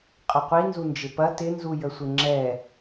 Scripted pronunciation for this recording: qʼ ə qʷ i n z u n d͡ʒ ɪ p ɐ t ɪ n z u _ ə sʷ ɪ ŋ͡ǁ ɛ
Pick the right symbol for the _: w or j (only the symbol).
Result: j